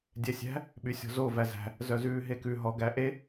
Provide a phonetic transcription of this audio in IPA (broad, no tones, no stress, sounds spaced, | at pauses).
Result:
dʲ ɛ sʲ æ̤ | ɓ y sʲ ɔ̤ z o v æ z æ̤ | z œ z ʉː ɦ e k ʉ ɦ ɔ ɡ æ ʔ e